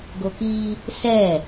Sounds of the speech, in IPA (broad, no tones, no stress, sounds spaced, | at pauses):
ɡ o k i | s ɛ